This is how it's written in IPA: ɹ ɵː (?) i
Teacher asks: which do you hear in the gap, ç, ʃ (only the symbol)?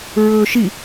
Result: ʃ